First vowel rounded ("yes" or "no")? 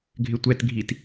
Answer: no